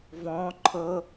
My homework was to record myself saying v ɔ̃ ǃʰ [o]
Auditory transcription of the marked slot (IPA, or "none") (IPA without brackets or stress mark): ɤ